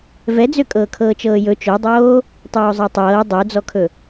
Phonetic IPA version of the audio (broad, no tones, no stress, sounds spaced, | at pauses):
v ɛ d͡z ø kʼ ɤː kʰ ɤː t͡ʃ ɤː j ɵ t͡ʃ o dˤ oː | tˤ oː zˤ ɜ tˤ ɤː dˤ ø d͡z ɔ kʰ ɵ